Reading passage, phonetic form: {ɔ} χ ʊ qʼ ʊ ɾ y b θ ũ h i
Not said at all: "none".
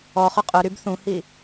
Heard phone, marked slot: ɔ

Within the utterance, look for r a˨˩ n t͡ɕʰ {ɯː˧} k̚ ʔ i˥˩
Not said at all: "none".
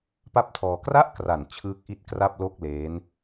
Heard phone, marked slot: ɯː˦˥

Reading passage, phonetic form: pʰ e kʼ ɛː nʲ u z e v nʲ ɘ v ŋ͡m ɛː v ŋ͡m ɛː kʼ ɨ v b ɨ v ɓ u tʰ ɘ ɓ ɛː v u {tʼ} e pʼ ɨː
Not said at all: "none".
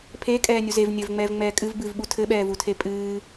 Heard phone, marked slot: tʰ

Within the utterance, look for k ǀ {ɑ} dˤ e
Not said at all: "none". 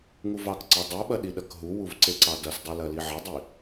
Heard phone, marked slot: ɑ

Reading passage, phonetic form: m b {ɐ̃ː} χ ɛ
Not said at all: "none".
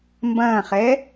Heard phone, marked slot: ɐ̃ː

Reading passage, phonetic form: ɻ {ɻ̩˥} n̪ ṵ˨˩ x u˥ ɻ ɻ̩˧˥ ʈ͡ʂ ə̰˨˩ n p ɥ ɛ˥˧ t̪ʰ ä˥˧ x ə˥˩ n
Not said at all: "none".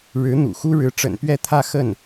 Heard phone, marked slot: ɻ̩˧˥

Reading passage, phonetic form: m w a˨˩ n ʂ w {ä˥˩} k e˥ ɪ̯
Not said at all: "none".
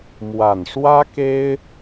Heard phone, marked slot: ä˥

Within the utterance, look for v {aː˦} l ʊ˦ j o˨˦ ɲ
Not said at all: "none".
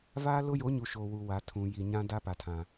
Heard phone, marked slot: aː˦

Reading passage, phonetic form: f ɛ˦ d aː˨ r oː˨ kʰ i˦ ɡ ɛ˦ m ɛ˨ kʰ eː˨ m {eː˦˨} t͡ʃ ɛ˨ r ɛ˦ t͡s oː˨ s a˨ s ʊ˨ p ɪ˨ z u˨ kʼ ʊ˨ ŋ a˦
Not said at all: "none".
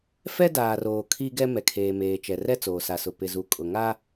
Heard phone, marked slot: eː˨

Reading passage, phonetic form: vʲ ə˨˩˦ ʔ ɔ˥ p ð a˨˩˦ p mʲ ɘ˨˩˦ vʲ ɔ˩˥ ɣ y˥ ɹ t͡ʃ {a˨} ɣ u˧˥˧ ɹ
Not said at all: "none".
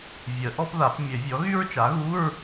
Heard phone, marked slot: a˩˥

